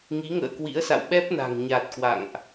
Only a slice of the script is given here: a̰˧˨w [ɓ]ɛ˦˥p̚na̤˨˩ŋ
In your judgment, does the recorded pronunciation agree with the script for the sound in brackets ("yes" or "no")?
yes